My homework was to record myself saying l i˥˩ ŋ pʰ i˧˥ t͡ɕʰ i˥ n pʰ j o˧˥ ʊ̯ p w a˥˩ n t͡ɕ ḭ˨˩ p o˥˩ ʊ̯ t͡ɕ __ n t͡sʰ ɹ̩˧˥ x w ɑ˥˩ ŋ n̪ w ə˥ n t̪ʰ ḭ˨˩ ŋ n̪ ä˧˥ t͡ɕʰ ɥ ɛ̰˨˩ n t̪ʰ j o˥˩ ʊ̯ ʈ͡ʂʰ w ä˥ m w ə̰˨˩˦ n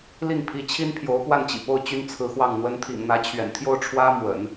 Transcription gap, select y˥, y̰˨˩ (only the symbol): y˥